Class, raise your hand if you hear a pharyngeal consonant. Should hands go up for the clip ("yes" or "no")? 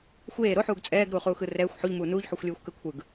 yes